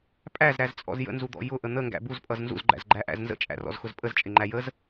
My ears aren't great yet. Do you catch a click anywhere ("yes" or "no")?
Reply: yes